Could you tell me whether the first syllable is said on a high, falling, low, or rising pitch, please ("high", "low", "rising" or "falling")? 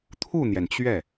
falling